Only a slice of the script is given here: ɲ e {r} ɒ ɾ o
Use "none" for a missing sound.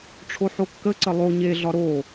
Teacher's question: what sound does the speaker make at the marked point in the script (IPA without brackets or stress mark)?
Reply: ɮ